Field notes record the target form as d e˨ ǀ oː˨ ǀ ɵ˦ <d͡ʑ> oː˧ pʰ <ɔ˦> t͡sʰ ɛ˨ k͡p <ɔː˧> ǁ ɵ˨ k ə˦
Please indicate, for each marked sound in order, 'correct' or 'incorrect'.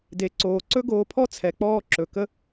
incorrect, correct, correct

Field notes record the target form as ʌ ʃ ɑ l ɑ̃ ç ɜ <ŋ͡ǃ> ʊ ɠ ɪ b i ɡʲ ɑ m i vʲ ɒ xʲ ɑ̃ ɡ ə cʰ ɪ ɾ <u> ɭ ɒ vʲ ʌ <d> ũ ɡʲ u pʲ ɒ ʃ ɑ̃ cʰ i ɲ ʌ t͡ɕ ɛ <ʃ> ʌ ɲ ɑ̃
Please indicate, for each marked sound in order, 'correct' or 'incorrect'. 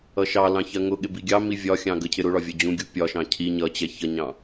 incorrect, incorrect, incorrect, incorrect

